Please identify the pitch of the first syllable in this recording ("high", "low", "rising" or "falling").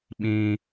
high